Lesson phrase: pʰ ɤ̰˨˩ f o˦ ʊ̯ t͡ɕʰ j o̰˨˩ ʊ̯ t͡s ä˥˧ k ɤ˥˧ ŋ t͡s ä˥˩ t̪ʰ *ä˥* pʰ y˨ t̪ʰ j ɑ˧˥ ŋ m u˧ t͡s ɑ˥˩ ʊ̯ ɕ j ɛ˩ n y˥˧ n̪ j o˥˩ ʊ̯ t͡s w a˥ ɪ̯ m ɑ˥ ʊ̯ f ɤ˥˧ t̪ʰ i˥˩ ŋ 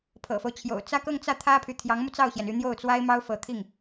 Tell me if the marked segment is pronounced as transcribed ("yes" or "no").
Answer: yes